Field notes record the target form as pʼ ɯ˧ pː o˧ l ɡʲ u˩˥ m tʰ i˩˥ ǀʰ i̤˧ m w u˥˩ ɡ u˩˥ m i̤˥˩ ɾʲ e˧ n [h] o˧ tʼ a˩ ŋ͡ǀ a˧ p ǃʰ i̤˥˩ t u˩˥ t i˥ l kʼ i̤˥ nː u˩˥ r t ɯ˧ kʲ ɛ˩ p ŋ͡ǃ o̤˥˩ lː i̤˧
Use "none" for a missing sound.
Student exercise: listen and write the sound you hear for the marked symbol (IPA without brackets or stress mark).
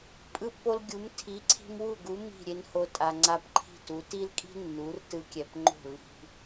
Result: h